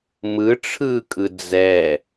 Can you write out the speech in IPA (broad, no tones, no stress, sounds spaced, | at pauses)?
m ɯ ʈ͡ʂʰ ɯː kʼ ɯ d͡z ɛ